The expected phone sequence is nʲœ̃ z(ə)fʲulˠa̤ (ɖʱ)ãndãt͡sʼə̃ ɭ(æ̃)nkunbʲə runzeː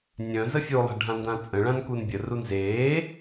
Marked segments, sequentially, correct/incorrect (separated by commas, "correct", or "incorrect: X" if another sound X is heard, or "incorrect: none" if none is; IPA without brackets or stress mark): correct, correct, incorrect: ã